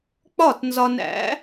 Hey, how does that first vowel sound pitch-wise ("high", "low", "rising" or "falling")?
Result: falling